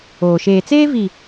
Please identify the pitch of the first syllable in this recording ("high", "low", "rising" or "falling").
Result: low